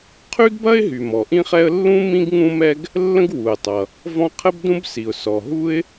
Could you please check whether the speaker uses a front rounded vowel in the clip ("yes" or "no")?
yes